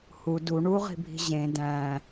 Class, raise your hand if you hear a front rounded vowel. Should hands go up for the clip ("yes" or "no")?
no